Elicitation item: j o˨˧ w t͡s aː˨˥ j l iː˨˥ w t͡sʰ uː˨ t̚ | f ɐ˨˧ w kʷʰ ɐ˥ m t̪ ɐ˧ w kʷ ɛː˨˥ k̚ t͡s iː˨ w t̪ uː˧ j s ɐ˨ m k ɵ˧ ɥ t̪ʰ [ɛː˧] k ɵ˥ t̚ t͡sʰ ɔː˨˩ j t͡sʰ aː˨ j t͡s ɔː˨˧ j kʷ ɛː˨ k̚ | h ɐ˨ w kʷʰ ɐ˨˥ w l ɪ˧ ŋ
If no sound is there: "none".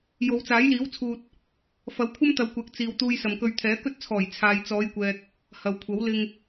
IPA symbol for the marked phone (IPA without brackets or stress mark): ɛː˨˥